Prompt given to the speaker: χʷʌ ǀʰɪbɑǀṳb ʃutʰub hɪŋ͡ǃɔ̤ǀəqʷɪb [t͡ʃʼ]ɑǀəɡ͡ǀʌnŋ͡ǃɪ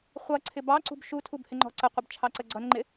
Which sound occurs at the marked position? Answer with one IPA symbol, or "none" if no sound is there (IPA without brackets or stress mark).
t͡ʃʰ